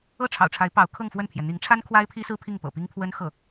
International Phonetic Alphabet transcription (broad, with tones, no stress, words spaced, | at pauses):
ɤ˥˩ʈ͡ʂʰɑ̰˨˩ʊ̯ʈ͡ʂʰa˧˥ɪ̯pɑ˧˥ʊ̯ kʰɤ˥˧ŋfwə˥˩npʰjɛ˩ n̪i˧˥ŋʈ͡ʂʰa˥n kʰwa˥ɪ̯pʰi˥sɹ̩˥ pʰi˥˩ŋpɤ̰˨˩pi˥ŋ pʰwə˥nxɤ˥˩